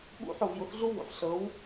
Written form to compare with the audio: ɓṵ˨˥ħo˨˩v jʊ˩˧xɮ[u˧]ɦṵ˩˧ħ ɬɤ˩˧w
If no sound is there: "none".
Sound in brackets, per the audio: u˧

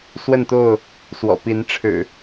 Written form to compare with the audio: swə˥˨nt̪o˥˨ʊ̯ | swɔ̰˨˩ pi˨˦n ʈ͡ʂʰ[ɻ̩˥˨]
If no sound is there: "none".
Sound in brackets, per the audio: ɻ̩˨˩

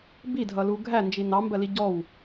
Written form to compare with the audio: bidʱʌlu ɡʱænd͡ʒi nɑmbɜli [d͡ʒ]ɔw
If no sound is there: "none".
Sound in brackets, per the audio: ɟ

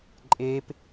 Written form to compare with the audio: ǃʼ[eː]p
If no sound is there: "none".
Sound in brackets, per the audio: eː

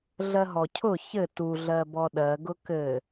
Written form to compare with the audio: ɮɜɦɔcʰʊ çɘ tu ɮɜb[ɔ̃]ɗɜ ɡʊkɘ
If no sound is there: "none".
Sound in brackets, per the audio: ɔ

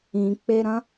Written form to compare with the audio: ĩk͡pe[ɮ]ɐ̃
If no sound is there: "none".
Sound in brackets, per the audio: ɾ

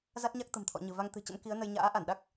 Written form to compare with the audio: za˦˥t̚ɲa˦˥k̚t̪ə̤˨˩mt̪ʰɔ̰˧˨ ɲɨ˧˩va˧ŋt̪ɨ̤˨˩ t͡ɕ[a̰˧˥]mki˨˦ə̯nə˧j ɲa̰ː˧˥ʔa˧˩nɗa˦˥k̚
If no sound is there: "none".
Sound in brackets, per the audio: ə̰˧˥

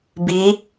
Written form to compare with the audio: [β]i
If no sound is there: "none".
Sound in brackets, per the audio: b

